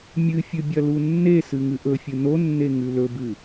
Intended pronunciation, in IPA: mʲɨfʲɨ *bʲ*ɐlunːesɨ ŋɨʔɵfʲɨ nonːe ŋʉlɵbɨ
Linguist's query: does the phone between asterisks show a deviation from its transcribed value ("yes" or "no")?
no